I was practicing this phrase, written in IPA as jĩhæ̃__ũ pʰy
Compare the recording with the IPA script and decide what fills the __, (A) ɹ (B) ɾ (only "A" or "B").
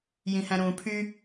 B